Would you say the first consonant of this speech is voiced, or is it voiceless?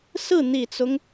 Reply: voiceless